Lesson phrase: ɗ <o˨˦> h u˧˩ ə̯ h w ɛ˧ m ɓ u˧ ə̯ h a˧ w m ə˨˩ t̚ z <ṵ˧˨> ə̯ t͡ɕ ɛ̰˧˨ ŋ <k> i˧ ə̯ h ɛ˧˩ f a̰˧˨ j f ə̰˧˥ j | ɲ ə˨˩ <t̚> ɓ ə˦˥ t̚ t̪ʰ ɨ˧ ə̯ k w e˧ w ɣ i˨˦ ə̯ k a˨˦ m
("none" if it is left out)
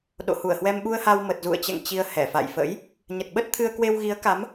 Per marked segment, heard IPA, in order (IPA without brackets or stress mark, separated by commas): o̰˧˨, ṵ˧˨, t͡ɕ, t̚